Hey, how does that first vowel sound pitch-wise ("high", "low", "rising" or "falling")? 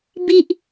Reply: low